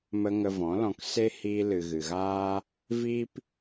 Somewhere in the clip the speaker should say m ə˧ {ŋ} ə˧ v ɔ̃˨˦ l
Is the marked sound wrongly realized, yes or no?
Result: no